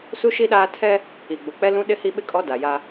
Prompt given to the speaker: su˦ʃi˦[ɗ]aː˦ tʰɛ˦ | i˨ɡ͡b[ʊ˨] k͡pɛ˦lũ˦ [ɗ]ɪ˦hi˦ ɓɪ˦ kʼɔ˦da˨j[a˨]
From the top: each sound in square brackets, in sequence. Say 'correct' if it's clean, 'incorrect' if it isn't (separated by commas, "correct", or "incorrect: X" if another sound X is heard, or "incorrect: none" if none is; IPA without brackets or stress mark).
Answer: correct, correct, correct, incorrect: a˦